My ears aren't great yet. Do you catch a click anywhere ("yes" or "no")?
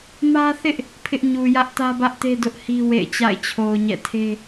no